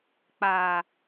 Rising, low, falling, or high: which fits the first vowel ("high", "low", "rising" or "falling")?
low